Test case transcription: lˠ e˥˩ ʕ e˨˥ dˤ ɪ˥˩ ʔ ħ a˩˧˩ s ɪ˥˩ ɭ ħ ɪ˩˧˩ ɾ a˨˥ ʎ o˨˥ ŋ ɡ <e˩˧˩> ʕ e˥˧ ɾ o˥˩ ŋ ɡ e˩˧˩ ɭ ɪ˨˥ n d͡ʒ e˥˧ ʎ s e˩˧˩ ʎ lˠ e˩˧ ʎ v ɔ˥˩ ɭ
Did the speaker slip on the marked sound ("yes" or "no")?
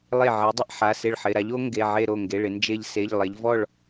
no